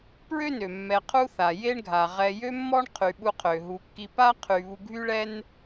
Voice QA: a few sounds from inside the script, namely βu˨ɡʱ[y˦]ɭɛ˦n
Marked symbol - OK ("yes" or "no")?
yes